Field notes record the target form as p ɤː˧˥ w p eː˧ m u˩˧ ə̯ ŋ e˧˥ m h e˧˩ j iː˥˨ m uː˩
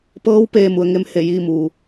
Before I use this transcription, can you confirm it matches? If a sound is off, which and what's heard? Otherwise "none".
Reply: none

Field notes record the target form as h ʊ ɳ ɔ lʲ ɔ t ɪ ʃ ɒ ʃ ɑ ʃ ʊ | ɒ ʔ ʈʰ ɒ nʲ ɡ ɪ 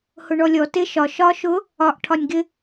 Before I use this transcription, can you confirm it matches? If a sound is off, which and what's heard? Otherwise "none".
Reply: ɑ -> ɒ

